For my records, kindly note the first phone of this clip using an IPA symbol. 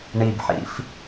ɳ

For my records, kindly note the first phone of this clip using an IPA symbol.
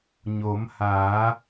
ɲ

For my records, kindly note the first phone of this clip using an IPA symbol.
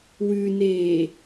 w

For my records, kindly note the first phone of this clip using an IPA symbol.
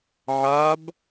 ʕ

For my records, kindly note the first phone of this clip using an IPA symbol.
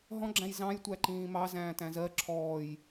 ɦ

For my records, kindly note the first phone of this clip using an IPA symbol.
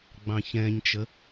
ɡ͡b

